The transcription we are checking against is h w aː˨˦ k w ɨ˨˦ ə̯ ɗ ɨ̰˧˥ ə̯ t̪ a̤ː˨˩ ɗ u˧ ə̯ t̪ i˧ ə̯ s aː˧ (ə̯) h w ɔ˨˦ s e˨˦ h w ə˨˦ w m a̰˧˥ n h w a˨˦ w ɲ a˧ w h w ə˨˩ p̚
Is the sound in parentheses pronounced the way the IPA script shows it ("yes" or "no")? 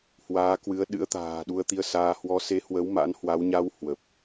no